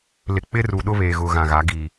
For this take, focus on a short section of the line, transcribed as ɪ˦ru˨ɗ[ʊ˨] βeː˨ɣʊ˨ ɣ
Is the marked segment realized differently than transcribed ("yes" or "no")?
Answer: yes